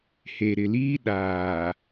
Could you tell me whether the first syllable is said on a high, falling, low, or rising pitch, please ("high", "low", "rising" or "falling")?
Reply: low